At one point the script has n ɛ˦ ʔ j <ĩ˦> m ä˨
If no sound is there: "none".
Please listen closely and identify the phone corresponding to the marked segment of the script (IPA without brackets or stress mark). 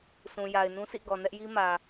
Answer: i˦